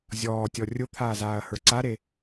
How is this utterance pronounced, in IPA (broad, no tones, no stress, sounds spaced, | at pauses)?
zʲ ɔː tʲ ɔ rʲ ʊ t̪ʰ aː z aː ɐ̯ h ə˞ ǀ a ɾ e